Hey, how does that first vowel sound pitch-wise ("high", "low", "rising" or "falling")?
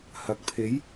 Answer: rising